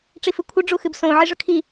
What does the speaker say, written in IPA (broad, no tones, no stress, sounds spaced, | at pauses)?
ʈ͡ʂ i f ɨ kʷʰ ɨ ɖ͡ʐ u x ɨ b s õ ʕ i ʐ ɵ kʰ i